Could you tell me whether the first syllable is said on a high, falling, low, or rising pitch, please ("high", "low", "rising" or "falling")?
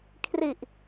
low